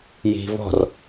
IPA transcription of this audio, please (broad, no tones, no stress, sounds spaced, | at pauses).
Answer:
j i̤ v ɔ̤ r